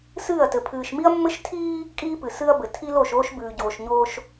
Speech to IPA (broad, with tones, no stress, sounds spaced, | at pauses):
s ɨː˦˨ ɐ̯ t ɘ˨ pʰ ɨː˨ ʃ m i˦ ɐ̯ mː ɘ˦ ʃ tʰ iː˦ | kʼ iː˦ p ɨ˨ s ɨ˦ ɐ̯ b ɘ˨ tʰ i˦ l o˦˨ ʃ oː˦ ʃ b ʉː˨ ɟ oː˨ ʃ ɲ oː˦ ʃ